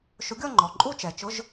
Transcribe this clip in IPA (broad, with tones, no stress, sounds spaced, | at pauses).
ʃ ʊ˨˥ ɡʲ ɔ˥˧ ŋ͡ǃ ɔ˩ ǃʼ u˥˧ t͡ʃ ɛ˩ t͡ʃ ʊ˧˥˧ ʒ